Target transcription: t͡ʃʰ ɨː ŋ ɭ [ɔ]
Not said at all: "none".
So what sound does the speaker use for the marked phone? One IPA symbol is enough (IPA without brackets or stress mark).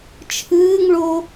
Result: o